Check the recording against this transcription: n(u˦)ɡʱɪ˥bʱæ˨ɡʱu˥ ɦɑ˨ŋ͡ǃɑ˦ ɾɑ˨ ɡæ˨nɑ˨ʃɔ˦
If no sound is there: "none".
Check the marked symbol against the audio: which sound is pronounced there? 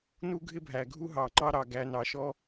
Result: u˥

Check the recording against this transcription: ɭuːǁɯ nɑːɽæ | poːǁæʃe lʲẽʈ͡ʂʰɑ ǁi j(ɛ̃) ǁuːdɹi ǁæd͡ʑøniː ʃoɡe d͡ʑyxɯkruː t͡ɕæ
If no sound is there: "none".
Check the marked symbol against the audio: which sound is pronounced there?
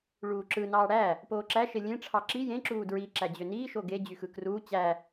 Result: ẽ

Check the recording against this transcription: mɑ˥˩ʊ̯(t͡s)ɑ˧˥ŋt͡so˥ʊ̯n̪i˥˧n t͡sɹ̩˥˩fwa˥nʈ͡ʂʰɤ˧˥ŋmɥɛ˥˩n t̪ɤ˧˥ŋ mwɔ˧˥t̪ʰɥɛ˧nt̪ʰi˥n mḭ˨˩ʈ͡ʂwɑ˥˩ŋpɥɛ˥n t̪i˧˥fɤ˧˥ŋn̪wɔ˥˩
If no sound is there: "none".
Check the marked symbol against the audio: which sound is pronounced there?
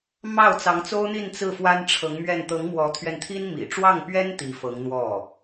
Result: t͡s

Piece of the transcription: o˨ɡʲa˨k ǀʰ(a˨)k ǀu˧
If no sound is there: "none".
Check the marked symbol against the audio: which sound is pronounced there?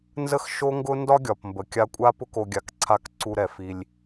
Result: a˧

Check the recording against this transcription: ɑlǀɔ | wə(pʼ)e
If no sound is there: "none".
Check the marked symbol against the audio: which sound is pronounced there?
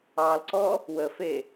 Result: f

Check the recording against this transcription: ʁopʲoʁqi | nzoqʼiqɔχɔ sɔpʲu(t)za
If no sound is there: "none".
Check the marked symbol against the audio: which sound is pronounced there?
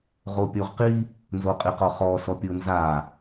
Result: n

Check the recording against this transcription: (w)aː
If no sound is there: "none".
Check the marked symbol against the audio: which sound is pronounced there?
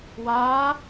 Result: w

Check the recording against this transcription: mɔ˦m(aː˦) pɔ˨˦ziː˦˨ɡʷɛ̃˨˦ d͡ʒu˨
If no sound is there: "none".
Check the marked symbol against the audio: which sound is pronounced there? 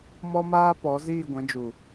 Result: aː˦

